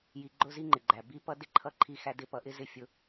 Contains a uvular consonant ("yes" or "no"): no